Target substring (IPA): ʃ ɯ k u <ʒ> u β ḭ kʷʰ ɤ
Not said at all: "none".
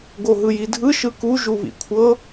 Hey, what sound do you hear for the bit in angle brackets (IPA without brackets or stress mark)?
ʒ